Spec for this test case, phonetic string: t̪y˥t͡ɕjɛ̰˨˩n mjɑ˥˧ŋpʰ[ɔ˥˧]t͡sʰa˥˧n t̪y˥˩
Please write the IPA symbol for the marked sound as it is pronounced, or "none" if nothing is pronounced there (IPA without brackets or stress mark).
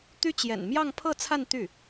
ɤ˥˧